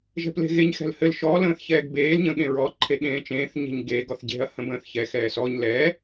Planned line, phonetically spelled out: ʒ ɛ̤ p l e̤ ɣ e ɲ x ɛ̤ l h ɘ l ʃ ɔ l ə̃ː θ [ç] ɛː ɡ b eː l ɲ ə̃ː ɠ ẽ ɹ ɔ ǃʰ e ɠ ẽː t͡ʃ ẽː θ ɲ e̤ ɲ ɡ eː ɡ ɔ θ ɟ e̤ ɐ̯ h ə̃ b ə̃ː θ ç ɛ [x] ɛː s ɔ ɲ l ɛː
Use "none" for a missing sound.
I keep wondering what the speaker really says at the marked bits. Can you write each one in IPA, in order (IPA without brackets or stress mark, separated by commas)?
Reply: ç, x